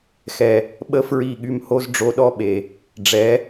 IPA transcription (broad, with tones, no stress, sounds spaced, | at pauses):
x ɛ˨ | ɓ ə˦ f ɹ i˦˨ ɠ y˧ m h o˦ z ɖ͡ʐ o˧ ɗ ɔ˦ ɓ e˨ | ɖ͡ʐ ɛ˨˦